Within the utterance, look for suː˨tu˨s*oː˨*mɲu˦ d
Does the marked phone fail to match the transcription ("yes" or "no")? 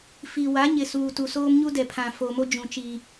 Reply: yes